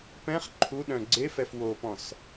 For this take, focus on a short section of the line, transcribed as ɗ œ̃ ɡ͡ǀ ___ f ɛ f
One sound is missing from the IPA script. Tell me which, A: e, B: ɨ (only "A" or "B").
A